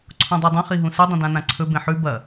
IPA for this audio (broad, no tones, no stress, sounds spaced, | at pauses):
ǀʰ õ dˤ o dˤ ɐ̃ χ i ɦ ũ s ɨ dˤ ĩ d ã n ã ǀʰ ɵ b ẽ ħ ʉ b ɐ